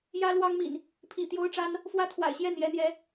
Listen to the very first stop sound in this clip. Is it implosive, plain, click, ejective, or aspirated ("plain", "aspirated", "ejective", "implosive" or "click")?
aspirated